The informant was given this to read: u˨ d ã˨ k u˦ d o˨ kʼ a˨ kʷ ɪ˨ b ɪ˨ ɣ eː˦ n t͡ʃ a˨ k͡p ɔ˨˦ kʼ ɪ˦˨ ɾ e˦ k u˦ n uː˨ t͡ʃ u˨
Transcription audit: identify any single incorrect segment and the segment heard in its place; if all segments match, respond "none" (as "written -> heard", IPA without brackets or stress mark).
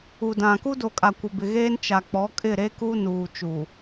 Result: none